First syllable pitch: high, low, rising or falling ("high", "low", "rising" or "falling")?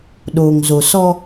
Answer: low